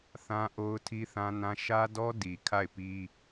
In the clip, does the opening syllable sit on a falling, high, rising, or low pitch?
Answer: high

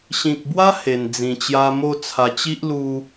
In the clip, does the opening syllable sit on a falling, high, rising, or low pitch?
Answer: low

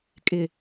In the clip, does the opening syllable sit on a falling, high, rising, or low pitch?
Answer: low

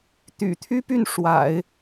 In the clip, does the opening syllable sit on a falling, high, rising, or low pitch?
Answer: low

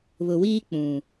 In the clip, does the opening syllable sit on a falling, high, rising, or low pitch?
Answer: low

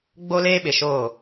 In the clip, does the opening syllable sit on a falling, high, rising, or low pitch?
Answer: high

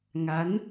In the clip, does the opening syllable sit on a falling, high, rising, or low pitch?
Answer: rising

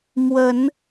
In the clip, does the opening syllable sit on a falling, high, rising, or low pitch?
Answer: rising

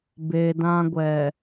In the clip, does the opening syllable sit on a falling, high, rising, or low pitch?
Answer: low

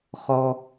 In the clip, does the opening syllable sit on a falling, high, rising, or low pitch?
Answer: high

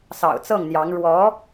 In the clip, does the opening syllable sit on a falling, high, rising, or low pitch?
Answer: low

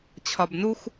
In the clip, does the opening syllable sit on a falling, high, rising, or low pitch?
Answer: low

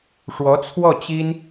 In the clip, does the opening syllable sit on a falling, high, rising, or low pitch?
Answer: rising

